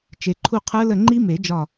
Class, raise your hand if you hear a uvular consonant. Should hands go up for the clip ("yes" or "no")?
yes